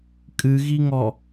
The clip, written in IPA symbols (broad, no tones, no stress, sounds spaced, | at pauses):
kʼ ɨ ɣ i ŋ ɔ